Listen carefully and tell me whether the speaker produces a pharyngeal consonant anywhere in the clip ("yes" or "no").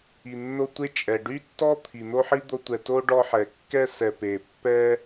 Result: yes